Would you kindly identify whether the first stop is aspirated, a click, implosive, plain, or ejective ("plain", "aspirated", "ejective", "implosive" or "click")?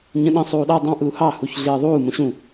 implosive